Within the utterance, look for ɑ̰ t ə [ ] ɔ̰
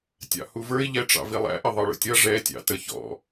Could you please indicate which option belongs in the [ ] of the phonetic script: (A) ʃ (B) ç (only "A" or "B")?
B